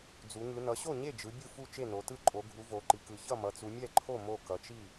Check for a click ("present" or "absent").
present